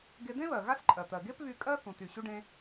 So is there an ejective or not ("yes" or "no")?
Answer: yes